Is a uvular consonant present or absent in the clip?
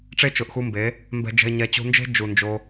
absent